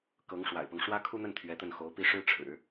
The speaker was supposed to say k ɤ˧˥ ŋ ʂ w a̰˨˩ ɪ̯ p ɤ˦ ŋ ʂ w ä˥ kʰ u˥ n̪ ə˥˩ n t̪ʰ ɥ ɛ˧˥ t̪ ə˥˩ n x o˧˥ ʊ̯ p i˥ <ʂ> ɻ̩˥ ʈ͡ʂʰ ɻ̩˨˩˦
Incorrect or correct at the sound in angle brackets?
correct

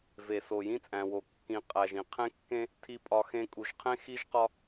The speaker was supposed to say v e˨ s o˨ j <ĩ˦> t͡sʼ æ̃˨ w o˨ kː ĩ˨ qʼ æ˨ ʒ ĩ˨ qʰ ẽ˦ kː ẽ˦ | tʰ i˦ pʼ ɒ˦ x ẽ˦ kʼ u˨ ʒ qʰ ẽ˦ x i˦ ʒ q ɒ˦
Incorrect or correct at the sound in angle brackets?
correct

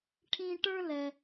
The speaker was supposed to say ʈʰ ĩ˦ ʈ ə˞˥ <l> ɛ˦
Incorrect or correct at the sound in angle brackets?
correct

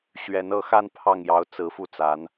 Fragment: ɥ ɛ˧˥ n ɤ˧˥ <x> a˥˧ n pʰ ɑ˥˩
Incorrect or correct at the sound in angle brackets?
correct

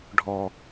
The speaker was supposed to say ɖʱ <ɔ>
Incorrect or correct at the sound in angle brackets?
correct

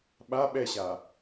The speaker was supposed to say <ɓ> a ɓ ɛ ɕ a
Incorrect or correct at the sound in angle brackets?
correct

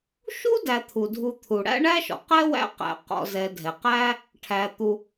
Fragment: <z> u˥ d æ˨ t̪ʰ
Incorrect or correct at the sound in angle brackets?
incorrect: ʃ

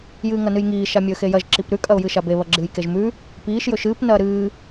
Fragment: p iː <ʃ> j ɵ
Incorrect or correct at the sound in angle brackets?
correct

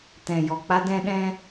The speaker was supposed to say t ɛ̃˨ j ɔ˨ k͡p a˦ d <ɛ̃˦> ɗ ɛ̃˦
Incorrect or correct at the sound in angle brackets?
correct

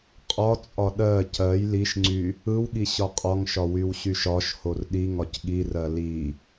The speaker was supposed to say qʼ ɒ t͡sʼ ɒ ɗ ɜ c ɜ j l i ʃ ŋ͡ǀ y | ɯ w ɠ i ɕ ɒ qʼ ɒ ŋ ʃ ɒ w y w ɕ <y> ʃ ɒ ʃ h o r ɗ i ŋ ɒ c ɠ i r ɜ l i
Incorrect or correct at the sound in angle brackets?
correct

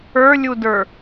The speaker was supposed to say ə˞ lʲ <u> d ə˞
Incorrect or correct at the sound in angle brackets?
correct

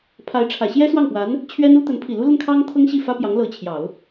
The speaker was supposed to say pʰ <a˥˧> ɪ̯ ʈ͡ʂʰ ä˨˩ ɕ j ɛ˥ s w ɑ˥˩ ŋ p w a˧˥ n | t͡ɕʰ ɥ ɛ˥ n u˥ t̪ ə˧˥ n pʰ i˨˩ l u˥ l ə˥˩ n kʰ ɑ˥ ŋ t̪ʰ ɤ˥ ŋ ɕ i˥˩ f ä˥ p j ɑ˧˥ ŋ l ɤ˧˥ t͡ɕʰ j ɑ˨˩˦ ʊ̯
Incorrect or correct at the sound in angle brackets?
incorrect: a˧˥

